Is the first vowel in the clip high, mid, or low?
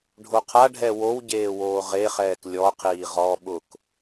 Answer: mid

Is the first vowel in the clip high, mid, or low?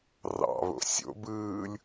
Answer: low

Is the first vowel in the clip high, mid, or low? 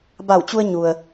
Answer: low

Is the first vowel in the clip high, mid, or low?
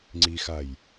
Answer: high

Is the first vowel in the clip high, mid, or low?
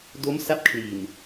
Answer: mid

